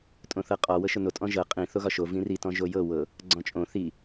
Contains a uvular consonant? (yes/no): yes